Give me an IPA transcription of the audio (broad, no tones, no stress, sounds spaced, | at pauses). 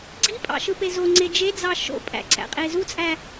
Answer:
ɡ͡ǀ i pʼ ɑ̰ ʃ ɯ p e z o ŋ͡ǀ e d͡ʒ e d͡z ɑ ʃ o̰ pʼ æ̰ ǀ æ̰ qʼ e z u t͡sʼ æ